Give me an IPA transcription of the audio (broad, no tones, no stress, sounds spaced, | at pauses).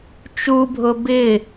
t͡ʃ u bʱ ʊ b ɪ